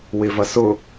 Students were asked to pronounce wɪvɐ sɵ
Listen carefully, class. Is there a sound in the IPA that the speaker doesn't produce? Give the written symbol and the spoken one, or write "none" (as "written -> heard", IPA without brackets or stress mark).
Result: ɵ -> ʊ